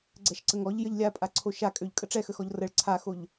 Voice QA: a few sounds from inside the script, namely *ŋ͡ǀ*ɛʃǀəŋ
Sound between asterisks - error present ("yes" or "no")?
yes